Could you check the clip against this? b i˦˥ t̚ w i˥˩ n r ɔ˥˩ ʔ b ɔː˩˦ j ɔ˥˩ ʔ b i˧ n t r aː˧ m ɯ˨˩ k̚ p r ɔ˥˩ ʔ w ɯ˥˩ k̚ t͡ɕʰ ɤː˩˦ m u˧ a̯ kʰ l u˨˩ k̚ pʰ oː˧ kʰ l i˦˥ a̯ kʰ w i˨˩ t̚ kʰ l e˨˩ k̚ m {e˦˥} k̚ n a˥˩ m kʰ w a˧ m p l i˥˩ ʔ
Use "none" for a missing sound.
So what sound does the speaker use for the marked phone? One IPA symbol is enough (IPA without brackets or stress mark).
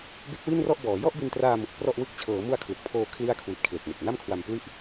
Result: e˨˩